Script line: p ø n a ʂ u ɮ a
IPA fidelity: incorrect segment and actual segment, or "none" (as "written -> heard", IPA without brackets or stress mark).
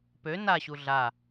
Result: ʂ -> ɕ